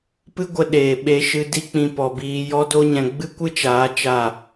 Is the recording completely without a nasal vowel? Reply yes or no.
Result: no